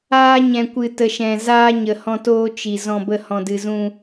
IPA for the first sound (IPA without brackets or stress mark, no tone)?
aː